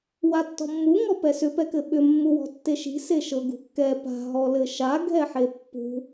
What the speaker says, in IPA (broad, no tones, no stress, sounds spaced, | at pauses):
w a tː ɔ̤ mː u ŋ ɔ p ɛ s ʏ p ɛ k ɘ ɓ ʏ mː u w ɔ̤ tː e ʃ i̤ s e ʃ ɤ ɡ ṳ kː ɛ p a̤ ɦ ɔ l ɘ ʃ a ɡʱ ɛ ħ e pː ṳ